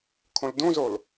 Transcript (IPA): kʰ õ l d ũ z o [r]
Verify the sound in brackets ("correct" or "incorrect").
incorrect